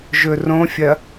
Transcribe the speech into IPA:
ʒ ɵ r õ fʲ ɐ

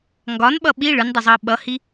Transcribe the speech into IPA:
ŋ ɡ ɒ n ɓ ʌ ɓ i ɭ ɯ n dˤ ɯ zˤ ɤː ɓ ʌ h i

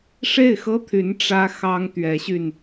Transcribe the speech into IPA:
ʂ e˥˩ ɪ̯ x ɤ˥ t̪ʰ y˧˥ n ʈ͡ʂ ä˥ x ɑ˥ ŋ t̪ ɥ ɛ˧˥ ɕ y˧ n

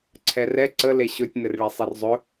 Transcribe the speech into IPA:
ǀʰ ɛ r ɛ ǀ ə l e ɕ ɵ tʲ n ɘ r ɭ e sˤ e r zˤ ɵ

